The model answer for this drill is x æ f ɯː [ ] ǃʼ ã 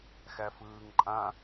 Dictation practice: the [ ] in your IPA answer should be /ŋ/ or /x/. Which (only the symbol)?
ŋ